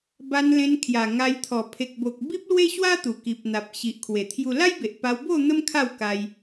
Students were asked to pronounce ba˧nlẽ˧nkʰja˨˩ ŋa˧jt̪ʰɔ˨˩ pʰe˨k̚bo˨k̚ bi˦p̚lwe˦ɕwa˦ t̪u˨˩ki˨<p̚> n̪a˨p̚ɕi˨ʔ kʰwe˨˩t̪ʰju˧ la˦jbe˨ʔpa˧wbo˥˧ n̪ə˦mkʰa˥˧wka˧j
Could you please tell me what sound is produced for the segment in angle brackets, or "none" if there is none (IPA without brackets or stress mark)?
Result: p̚